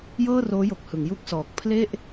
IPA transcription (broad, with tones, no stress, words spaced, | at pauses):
jɤː˥˩roː˦˥jo˨˩k̚hɯ˩˦ŋ ju˥˩k̚sɔː˨˩k̚ pʰle˥˩ʔ